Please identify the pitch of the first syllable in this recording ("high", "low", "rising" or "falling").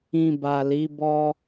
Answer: low